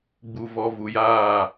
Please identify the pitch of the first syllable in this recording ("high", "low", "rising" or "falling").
low